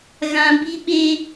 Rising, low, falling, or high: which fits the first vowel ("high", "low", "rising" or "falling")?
high